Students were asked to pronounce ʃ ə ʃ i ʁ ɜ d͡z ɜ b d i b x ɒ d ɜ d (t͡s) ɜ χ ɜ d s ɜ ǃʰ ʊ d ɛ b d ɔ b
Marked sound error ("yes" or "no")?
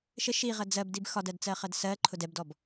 no